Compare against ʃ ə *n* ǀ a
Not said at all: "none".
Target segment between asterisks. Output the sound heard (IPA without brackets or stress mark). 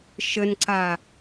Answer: n